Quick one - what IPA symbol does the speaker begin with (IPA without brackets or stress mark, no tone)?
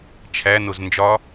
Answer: t͡ʃʰ